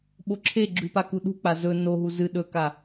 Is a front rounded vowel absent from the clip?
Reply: yes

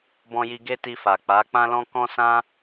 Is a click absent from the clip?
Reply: yes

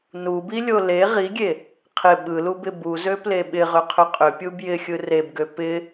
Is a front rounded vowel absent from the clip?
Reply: no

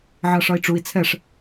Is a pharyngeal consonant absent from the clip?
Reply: no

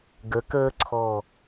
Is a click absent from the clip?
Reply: no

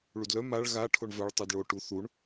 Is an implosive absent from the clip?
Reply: yes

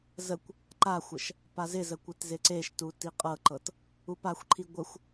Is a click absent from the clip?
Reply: no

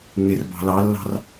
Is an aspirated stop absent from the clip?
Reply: yes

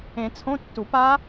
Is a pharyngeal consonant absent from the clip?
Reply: yes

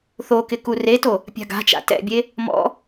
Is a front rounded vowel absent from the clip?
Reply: yes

